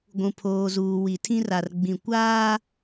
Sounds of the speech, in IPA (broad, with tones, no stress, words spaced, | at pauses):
ɡʷũ˨pʰoː˨zuː˨ wi˨tʰĩ˦ra˨r ɡ͡bĩ˨kʷaː˦